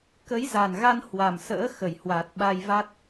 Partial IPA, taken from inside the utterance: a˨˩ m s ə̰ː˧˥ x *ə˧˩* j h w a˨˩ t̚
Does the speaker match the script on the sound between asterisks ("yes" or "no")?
yes